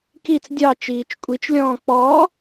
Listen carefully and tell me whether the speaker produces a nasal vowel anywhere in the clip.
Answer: yes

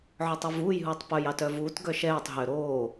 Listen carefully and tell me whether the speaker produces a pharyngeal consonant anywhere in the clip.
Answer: yes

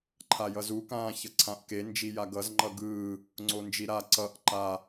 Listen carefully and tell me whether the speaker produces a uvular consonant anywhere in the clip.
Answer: no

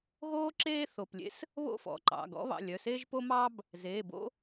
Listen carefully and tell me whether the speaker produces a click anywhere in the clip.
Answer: yes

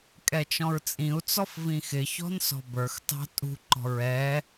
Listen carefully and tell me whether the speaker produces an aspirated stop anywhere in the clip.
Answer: no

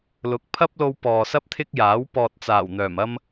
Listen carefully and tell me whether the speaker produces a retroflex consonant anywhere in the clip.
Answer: no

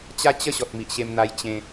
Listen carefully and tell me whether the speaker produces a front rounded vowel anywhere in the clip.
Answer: no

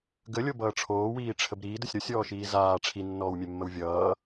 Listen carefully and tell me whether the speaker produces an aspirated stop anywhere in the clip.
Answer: yes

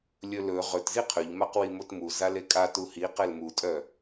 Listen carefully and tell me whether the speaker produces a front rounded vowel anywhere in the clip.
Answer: yes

